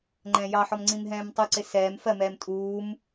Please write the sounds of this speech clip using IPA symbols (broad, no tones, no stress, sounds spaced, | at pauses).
ŋ͡ǃ ɛ̃ː j ɑ ħ ɔ m ŋ͡ǀ ĩ m ɦ ɛ̃ː m tˤ u ǀ ɪ s ɛː m f ɜ m ɛː m tʼ uː m